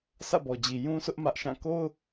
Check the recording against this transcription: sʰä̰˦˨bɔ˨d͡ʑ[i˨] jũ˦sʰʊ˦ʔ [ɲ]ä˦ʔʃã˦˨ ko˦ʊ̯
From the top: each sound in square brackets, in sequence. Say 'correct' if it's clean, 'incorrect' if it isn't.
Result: correct, incorrect

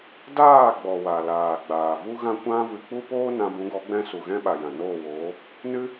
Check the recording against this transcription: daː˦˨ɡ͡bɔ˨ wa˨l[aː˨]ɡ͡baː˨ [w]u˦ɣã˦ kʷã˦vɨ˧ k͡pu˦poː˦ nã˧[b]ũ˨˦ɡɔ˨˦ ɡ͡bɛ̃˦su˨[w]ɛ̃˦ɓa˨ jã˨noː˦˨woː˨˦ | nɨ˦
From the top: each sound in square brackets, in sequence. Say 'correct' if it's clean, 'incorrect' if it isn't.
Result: correct, incorrect, correct, incorrect

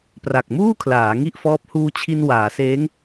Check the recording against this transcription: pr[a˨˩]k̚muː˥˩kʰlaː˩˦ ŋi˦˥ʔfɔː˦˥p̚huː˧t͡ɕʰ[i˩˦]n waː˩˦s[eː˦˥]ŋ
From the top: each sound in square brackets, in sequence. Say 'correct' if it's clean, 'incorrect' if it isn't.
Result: correct, incorrect, correct

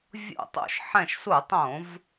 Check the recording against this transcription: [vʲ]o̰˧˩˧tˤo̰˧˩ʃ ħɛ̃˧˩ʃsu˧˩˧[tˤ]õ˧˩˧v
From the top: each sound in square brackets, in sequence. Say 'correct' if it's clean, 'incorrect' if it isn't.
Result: correct, correct

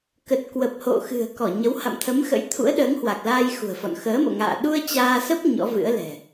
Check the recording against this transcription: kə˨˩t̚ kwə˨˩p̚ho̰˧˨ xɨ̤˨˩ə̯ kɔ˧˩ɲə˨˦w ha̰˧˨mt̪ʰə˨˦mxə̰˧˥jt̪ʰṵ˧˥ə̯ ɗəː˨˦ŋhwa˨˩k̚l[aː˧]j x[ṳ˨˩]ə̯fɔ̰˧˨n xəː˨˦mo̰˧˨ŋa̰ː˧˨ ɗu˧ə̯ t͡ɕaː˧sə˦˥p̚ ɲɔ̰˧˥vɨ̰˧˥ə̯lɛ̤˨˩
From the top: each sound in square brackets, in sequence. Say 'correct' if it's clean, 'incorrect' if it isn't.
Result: correct, correct

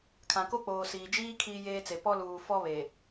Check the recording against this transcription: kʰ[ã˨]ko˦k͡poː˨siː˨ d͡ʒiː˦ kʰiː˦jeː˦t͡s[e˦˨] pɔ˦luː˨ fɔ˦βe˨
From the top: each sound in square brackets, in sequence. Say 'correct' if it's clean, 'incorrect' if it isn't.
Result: correct, incorrect

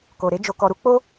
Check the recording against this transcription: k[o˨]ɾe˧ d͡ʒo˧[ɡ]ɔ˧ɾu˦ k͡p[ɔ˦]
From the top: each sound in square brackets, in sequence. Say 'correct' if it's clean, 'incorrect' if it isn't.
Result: correct, incorrect, incorrect

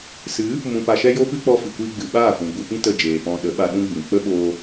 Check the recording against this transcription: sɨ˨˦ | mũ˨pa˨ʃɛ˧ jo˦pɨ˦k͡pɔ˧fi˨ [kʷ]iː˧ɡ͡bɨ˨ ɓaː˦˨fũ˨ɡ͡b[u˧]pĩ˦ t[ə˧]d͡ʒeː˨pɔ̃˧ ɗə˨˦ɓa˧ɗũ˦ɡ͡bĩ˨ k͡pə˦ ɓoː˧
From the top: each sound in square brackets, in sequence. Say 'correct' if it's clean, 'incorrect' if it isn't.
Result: correct, correct, correct

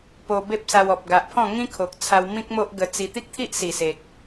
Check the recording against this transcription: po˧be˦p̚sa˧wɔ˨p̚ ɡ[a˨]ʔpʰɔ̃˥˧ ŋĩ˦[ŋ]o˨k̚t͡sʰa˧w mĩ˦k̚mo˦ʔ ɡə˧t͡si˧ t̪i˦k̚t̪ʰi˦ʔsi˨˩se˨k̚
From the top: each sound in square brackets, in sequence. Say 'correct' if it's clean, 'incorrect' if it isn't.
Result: correct, incorrect

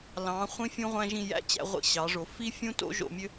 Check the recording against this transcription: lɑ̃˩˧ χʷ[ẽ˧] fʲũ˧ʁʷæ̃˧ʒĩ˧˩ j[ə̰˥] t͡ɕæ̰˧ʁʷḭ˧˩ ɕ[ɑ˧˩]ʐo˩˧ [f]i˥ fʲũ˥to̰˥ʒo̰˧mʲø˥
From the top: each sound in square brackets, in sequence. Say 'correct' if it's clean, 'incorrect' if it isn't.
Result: incorrect, incorrect, incorrect, correct

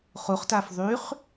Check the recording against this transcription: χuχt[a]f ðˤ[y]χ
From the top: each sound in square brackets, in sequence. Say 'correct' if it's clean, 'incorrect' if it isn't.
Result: correct, correct

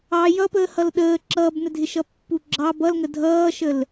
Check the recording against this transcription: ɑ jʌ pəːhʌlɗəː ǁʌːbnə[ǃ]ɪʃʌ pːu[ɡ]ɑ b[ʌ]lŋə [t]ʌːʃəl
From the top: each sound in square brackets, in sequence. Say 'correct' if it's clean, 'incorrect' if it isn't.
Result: incorrect, incorrect, correct, incorrect

